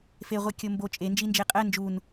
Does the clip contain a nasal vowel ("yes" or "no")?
no